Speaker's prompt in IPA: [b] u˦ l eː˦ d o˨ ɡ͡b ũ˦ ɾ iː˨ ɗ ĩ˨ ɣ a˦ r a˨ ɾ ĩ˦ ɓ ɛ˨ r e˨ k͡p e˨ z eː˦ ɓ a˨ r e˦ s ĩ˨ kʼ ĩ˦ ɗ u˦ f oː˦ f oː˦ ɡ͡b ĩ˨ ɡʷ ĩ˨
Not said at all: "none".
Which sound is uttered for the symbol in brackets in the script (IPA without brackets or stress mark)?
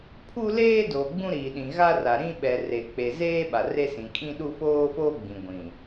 pʰ